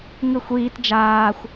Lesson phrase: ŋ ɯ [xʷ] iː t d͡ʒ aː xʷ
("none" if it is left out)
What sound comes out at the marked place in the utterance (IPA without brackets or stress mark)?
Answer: xʷ